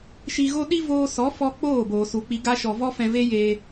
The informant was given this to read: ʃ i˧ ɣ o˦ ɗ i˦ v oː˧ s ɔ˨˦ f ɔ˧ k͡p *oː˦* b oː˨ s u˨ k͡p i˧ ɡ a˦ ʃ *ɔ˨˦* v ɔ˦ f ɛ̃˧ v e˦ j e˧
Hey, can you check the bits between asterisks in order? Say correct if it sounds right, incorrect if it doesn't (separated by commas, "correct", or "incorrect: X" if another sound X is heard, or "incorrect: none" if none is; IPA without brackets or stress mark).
incorrect: oː˦˨, incorrect: ɔ˨